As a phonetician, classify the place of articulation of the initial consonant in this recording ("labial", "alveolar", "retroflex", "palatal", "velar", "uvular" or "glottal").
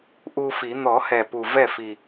glottal